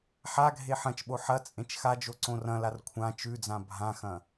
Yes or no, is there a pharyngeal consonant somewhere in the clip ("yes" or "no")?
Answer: yes